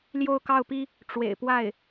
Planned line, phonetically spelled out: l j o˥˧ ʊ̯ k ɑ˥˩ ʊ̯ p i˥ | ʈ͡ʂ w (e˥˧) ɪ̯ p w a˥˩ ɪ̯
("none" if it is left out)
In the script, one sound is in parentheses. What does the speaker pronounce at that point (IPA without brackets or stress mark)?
ḛ˨˩